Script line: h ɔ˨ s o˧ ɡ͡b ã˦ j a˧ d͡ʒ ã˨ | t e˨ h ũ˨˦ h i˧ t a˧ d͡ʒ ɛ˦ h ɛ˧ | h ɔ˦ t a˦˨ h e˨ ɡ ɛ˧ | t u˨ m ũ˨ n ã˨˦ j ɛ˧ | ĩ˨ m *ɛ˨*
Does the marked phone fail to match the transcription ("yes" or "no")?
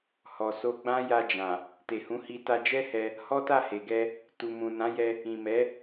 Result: yes